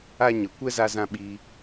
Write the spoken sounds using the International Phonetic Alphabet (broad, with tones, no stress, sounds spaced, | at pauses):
a˦ ɲ ə˨ kʷ ɛ˦ z a˧ z ã˧ ɓ iː˧